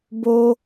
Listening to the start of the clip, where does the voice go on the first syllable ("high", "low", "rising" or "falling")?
high